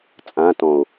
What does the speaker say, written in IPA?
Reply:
t͡sʼ ã t ɔ̃ o̯

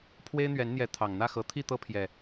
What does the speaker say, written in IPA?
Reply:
pʰ w e˦ ɪ̯ n̪ ɥ ɛ˨˦ n n̪ j ɛ˨˦ t̪ʰ ɑ˨˩ ŋ n̪ ä˥˨ x ɤ˨˦ t̪ʰ i˥˨ t̪ ɤ˦ pʰ j ɛ˨˩

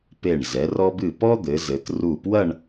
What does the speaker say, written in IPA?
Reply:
p e˧˩ ɳ z ɛ˩˧ r ɔ˧ b ɨ˧˩ p ɔ˥ d̪ ɘ˩˧ z ɘ˩˧ t r u˧˩ p w ɐ˥˧ ɳ

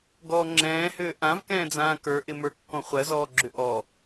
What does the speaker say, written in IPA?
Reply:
ɡ ɔː ŋ͡ǁ ɛ̃ː h ʏː ʔ ã v k ɛ̃ː d͡z ãː k ə˞ ʔ ɪ m ə˞ kː ɔ̃ χʷ ɜ z ɔː ɡ͡ǁ ʏ ʔ ɔ

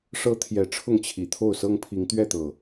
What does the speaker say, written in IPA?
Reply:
ʂ ɤ˦ t̪ʰ j ɛ˨˦ ʈ͡ʂʰ ʊ˥˨ ŋ t͡ɕʰ i˨˩ t̪ʰ o˥˨ ʊ̯ s ɤ˦ ŋ pʰ i˨˦ ŋ t̪ ɥ ɛ˥˨ t̪ ɤ˨˩

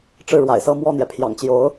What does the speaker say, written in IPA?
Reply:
ʈ͡ʂ ɻ̩˥˩ ɻ w a̰˨˩ ɪ̯ s ɤ˥˧ m w ɔ˥˩ n̪ j ɛ˩ pʰ j ɑ̰˨˩ ŋ t͡ɕ j o˧˥ ʊ̯

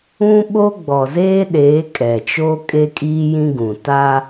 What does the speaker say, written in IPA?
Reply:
ũ˦ ɓ o˦ ɡ͡b ɔ˨ z eː˦ ɗ eː˨˦ kʼ ɛ˨ t͡ʃ oː˦ kʼ e˦ kʼ iː˦ j ĩ˦ ɡ ũ˨ t a˦

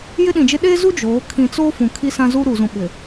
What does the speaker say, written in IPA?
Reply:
j ɪ˦ ɗ ĩ˨ d͡ʒ ɪ˦ ɗ e˦ z u˦ d͡ʒ oː˨˦ kʰ ĩ˨ t͡s o˦ f ũ˨ kʰ i˦ s ã˦ z u˦ ɾ u˨ z ũ˨ ɓ ɪ˨

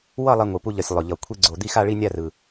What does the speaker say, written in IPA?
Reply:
w ʌ˥˧ lˠ ɛ˧ ŋʷ ɯ˨˩ p u˧ ʎ ʌ˨˩ sʲ lˠ o˨˩ ʎ ʌ˨˩ kʷʰ i˧ ɡ͡ǀ o˨˩ d̪ i˥˧ x a˥˧ ɭ i˥˧ nʲ a˥˧ r ɯ˨˩

